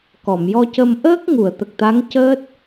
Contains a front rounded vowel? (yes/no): no